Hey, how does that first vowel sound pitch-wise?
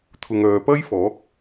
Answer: low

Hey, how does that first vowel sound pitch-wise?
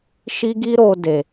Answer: high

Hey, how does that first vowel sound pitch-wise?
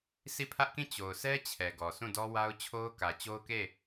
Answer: falling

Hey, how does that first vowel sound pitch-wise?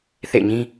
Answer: falling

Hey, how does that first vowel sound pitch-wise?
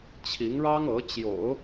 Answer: rising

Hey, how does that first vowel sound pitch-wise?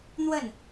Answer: falling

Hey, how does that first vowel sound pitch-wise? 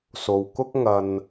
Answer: low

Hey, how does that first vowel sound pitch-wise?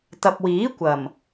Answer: low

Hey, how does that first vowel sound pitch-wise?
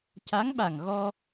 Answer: rising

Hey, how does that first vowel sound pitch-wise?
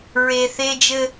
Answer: low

